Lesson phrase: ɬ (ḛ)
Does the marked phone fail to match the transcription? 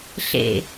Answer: no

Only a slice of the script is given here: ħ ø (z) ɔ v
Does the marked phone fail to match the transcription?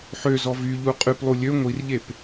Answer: no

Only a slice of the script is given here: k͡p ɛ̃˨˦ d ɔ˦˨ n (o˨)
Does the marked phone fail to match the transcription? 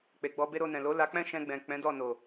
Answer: no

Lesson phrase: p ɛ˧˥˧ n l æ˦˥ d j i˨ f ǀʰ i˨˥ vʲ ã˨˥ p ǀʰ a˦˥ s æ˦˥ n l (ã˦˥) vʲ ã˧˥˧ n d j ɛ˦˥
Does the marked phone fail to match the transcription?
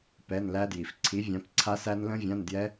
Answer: yes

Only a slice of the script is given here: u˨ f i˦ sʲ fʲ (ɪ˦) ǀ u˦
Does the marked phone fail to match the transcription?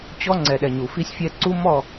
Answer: yes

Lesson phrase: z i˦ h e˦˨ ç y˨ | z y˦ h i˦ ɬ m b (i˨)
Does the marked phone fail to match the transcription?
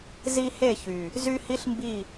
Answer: yes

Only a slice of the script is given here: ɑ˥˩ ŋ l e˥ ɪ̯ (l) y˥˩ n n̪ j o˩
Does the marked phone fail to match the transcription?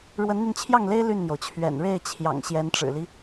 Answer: no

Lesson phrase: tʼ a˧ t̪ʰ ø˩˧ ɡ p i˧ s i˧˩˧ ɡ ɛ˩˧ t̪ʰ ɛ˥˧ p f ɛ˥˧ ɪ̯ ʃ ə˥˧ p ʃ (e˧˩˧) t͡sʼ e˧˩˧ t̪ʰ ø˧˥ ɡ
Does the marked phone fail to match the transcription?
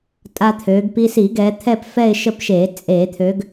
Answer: no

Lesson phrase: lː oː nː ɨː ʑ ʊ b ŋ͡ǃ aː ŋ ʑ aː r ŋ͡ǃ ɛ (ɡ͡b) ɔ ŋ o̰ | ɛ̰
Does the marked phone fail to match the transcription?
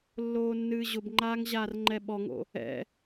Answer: yes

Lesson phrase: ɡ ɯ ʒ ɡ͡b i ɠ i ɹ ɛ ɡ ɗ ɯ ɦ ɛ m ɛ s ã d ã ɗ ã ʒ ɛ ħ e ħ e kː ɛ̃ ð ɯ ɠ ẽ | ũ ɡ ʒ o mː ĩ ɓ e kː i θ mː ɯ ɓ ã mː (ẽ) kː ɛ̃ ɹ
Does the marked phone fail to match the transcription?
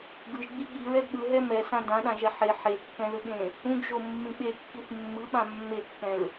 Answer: yes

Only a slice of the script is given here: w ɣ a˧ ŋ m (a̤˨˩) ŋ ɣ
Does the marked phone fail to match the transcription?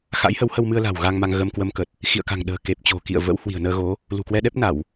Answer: yes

